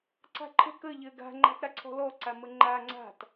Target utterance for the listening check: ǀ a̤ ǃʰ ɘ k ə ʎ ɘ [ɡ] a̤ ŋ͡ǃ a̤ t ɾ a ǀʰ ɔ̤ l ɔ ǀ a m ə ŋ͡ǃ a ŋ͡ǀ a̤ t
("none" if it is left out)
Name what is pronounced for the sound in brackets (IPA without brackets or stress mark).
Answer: ɡ